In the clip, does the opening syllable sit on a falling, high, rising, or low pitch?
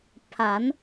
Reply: rising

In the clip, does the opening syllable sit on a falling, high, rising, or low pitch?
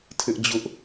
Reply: high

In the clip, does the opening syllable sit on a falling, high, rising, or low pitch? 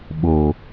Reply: low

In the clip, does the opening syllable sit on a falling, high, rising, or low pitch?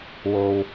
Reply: low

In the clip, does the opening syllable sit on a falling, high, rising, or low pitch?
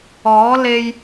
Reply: rising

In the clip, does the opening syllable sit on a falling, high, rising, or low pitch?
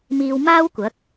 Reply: low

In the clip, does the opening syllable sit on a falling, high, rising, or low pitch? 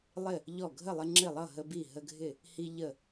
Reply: falling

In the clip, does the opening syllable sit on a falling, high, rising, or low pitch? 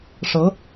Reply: rising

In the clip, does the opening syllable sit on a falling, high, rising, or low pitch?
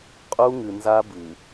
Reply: high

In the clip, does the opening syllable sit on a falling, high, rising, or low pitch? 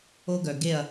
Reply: high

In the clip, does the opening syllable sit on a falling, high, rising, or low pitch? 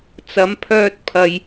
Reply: rising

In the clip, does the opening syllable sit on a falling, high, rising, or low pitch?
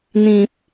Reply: low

